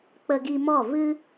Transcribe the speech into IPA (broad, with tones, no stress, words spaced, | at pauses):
k͡pə˧ɡi˧mɔ˦˨ vɨ˧